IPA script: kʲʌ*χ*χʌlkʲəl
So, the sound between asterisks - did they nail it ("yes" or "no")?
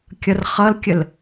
no